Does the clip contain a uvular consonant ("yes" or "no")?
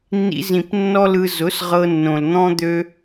yes